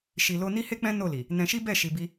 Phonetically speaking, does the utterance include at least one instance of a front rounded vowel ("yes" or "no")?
no